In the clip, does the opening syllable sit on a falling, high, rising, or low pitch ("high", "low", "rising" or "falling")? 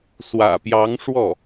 low